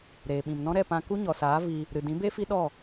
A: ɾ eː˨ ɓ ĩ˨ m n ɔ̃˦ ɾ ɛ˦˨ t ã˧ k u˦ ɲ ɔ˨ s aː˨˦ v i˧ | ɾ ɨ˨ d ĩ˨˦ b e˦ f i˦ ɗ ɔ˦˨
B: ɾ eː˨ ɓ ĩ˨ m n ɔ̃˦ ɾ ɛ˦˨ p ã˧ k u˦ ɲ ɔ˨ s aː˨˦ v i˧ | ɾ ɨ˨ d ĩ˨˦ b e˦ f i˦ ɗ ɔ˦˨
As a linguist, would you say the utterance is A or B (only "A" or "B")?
B